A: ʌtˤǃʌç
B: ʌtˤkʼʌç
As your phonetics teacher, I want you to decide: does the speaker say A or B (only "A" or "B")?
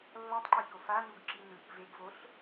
A